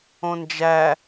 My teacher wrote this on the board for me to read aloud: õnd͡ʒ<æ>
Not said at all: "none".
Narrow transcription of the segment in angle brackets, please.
æ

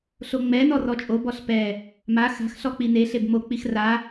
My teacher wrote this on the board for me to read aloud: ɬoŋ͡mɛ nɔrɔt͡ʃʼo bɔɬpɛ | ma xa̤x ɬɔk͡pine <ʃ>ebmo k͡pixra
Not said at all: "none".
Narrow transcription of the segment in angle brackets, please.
ɬ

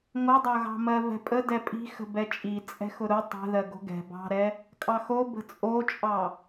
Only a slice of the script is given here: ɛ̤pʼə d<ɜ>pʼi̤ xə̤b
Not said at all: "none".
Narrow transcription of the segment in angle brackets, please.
ɛ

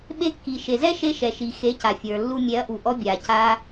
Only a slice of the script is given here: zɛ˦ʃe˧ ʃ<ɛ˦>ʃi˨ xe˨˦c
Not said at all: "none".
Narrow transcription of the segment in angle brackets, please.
ɛ˨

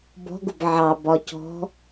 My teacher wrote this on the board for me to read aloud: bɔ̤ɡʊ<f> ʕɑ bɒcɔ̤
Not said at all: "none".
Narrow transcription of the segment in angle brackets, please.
b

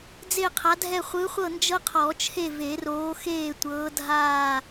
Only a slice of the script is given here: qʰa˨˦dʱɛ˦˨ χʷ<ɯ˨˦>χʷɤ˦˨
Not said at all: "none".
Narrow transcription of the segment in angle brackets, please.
ɯ˨˦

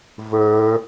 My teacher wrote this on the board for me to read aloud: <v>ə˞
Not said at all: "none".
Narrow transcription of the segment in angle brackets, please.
v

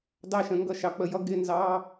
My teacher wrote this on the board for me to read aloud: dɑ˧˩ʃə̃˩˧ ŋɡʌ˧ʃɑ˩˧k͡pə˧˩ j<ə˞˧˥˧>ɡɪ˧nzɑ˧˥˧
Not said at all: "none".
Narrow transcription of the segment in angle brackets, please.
ʌ˧˥˧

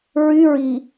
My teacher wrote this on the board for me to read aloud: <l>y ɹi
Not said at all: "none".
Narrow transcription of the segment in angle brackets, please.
ɹ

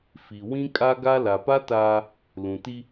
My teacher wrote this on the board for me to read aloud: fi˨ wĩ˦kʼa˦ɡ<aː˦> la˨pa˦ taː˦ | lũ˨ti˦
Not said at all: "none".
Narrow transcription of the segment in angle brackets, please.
a˦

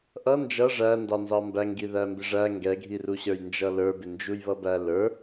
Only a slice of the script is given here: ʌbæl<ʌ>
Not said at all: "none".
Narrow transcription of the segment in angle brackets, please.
ə˞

